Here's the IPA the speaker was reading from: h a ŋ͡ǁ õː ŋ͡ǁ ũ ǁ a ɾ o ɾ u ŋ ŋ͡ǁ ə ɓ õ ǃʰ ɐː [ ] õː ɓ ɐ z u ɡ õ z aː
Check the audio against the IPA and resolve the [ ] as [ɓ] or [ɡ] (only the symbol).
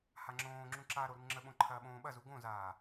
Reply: ɓ